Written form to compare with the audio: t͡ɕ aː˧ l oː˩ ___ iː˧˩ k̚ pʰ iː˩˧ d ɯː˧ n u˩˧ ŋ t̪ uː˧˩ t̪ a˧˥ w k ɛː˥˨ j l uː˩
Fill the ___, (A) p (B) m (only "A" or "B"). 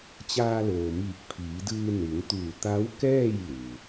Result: B